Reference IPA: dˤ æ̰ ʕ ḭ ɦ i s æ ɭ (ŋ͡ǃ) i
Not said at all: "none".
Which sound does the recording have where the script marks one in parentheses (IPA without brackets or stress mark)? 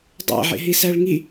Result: ŋ